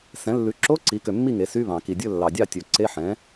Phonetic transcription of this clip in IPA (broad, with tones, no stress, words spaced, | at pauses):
sɛ̃˩˥ lːʉ˩˥ǁo˧˥˧ǀi˩˥kø˨ mːi˥˨ŋe˩˥ sy˧˥˧βɑ̃˨˩˦ ki˨dʲɵ˥˨ lːɑ˨dʲɑ˥˨ tʲɵ˨ ǀe˧˥˧ħɛ̃˩˥